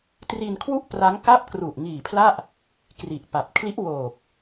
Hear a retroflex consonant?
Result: no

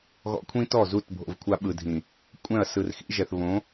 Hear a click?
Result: no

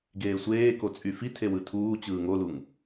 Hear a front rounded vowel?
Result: yes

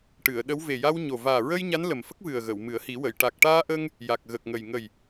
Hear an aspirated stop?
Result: no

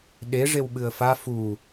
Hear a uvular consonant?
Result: no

